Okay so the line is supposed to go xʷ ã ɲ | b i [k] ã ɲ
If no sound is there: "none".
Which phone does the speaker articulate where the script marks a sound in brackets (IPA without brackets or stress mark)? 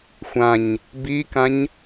k